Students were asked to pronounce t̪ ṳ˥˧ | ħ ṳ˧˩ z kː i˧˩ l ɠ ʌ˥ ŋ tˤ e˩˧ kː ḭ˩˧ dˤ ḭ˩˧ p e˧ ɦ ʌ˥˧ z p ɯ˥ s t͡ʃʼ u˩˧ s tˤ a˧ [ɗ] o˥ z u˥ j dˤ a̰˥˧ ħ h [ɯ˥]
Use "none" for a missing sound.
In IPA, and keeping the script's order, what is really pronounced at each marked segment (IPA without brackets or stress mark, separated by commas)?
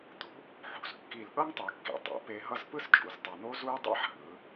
n̪, ɯ˩˧